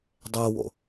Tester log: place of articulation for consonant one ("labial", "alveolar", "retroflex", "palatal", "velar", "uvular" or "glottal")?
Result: alveolar